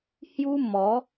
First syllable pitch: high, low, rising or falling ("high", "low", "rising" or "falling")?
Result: high